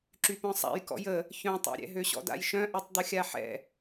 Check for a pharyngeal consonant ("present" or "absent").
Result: present